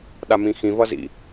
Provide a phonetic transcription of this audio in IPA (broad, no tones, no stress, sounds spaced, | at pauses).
ɗ a m ĩ x ĩ v ʌ z ḭ